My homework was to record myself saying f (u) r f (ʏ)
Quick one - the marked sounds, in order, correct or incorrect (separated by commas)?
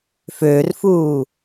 incorrect, incorrect